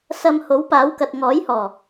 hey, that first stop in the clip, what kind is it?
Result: plain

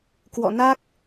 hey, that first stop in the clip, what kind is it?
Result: plain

